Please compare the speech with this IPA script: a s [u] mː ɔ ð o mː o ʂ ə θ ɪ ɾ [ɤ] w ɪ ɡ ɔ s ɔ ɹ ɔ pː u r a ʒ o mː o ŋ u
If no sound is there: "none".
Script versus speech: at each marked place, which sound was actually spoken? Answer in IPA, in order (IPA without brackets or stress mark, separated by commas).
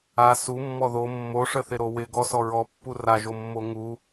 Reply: u, o